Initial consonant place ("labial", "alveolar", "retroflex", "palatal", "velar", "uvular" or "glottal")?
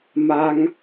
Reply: labial